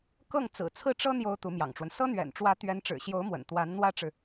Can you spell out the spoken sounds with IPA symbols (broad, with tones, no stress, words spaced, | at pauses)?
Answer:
kɤ˥˩ŋ t͡sɹ̩˨˩t͡sʰɹ̩˥˩ʈ͡ʂɤ˥ n̪jo˥ʊ̯t̪u˧˥mjɑ̰˨˩ŋʈ͡ʂwə˦n sɤ˥n̪ɥɛ̰˨˩nʈ͡ʂwä˧˥ t̪ɥɛ˧˥nʈ͡ʂɻ̩˨˩ɕjo˧˥ʊ̯mwə̰˨˩n t̪wa˧˥n n̪wä˥ʈ͡ʂɻ̩˨